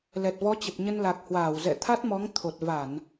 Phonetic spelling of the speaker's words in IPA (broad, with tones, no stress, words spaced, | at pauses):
lɛ˨˩t̚vɔ˨˦t͡ɕə˨˩p̚ ɲə˧n la˨˩k̚hwaː˧˩wzɛ̰˧˨ t̪ʰa˦˥t̚mɔ˨˦ŋ t̪ʰo˨˩t̚ va˧˩˨n